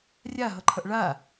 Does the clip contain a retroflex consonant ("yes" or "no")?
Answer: yes